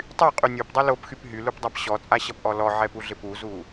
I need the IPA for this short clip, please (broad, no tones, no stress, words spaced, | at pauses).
tˤyqʼy nʲopdˤʌ lopxyp ɦylupdˤap ɕɔt͡sʼaɕʌpʔɔ lɔʕɛpuɮɪ puzu